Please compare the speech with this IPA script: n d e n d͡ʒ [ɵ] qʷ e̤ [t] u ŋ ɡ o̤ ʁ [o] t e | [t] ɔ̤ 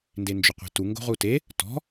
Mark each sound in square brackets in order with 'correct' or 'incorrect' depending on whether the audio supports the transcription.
correct, correct, incorrect: u, correct

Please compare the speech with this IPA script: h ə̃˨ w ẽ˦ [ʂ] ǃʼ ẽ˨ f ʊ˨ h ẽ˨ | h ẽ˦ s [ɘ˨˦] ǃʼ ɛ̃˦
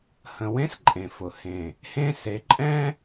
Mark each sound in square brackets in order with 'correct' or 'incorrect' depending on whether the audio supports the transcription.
incorrect: s, incorrect: e˨˦

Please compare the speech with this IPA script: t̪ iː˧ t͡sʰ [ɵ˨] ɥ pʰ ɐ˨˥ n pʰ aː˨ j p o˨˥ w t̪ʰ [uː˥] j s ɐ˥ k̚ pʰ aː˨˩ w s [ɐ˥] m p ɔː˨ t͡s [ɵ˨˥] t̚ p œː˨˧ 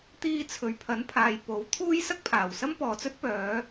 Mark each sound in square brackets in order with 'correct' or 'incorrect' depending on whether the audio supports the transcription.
correct, correct, correct, incorrect: ɵ˥

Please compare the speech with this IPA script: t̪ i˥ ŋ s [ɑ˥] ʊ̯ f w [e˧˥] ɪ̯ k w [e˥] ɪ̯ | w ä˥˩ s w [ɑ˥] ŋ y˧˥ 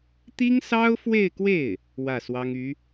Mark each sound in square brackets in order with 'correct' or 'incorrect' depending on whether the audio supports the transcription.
correct, incorrect: e˥˧, incorrect: e˥˩, correct

